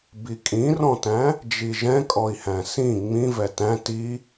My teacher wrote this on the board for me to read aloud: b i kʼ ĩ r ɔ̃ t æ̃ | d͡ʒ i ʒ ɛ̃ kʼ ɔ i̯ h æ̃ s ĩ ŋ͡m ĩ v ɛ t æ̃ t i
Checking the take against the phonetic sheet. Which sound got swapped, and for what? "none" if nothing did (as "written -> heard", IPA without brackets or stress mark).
none